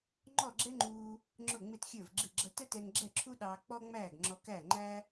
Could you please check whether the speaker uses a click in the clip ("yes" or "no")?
yes